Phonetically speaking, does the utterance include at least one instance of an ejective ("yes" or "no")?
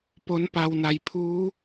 no